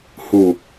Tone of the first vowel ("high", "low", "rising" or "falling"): low